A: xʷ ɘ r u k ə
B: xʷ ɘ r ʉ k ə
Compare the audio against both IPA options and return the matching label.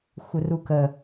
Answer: A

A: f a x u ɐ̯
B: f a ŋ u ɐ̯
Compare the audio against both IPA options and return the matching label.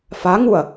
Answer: B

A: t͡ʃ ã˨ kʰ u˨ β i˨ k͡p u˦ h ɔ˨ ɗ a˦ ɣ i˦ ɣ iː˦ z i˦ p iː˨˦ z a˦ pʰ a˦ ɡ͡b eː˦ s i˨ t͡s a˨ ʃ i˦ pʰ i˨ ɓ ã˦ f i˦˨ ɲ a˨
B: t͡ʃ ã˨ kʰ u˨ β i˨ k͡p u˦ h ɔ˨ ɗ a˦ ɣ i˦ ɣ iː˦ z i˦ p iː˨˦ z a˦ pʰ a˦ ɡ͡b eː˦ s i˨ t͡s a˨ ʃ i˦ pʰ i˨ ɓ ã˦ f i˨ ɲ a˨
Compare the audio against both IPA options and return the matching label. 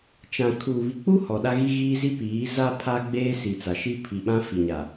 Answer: B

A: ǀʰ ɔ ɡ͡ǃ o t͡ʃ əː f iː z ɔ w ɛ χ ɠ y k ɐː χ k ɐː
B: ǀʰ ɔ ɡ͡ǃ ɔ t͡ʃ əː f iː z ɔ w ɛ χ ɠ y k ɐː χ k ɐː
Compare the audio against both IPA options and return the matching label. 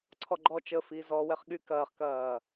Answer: B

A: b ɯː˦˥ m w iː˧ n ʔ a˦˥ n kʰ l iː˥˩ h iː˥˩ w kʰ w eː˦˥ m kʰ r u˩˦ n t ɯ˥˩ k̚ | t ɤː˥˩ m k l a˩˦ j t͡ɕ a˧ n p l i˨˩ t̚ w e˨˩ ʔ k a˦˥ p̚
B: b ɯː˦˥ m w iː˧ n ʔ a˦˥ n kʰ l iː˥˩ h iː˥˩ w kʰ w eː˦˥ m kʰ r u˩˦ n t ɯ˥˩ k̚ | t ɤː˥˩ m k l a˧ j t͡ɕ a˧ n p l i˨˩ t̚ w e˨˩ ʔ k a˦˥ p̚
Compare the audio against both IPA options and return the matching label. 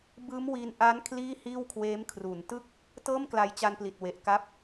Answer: B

